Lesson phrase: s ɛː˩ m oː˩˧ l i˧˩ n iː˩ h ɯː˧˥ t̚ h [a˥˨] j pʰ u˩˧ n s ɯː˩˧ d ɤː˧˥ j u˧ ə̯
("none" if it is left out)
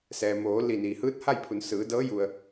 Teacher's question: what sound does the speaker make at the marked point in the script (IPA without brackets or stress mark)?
a˥˨